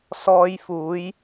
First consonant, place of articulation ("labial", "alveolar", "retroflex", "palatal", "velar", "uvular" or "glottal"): alveolar